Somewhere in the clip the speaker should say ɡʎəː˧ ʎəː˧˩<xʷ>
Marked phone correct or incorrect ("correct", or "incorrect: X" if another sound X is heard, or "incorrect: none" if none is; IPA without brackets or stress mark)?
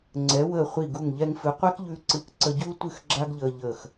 incorrect: x